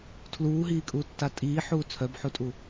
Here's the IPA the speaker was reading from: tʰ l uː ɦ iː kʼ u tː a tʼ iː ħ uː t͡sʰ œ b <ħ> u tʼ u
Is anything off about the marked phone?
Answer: no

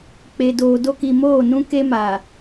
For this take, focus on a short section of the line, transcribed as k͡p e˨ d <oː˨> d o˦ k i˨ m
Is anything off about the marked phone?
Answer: no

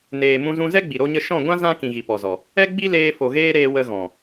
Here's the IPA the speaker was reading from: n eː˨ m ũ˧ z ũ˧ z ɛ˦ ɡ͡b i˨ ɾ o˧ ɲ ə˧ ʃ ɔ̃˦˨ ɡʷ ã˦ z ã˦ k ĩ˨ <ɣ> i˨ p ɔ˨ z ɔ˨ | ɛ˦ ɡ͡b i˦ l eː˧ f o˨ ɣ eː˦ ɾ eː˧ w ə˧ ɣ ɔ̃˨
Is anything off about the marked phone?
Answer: no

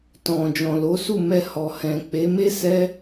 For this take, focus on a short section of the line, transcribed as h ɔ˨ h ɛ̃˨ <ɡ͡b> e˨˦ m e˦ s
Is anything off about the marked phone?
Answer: yes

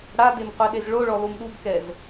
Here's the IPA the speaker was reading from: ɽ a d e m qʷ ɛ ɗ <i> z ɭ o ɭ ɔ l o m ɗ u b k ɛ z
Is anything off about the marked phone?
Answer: yes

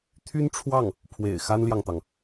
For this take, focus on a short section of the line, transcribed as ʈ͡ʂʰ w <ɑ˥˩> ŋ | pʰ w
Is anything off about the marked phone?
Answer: no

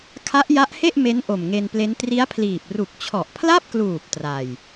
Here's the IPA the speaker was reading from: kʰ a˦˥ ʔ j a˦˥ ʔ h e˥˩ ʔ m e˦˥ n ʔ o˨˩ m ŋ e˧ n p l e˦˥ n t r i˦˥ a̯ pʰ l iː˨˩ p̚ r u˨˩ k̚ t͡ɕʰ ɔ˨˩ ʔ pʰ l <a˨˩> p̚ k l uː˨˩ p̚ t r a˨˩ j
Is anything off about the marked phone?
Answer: yes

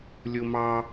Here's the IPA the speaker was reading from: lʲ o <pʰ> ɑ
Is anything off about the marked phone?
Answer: yes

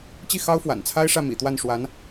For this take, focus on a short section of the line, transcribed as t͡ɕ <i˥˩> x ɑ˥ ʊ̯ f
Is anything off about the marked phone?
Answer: no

